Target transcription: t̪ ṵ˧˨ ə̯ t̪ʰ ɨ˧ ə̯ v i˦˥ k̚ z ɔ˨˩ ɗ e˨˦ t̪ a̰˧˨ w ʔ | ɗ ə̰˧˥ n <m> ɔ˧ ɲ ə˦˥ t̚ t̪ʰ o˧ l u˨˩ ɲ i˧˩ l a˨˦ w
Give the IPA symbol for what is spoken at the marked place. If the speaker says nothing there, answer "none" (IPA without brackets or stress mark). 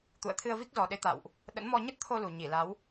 m